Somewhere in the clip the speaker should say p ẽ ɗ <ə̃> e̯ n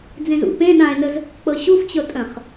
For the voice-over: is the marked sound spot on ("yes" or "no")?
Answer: no